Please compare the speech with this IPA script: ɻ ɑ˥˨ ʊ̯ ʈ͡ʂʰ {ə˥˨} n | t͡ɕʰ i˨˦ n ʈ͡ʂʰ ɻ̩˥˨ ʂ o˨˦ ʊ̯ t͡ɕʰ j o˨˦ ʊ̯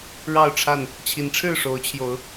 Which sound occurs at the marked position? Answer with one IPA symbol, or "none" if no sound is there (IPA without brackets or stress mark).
a˥˨